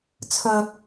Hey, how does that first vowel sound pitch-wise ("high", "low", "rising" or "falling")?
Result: low